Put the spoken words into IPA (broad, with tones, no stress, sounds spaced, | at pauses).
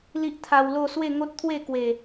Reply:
l i˦ ʔ t̪ʰ a˧ w l o˥˧ s w e˥˧ ŋ o˦ t̚ t̪ʰ w e˥˧ k w e˨˩